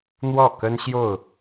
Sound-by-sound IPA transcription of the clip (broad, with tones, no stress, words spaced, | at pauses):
n̪wɔ˥˨kə˦nɕjo˥˨ʊ̯